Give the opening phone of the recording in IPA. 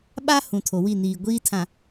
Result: ɓ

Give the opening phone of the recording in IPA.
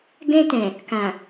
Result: ɡ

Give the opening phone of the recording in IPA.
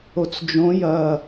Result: o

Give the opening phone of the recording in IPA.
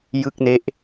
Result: j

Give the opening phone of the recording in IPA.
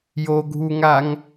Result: j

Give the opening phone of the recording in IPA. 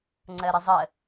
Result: ŋ͡ǀ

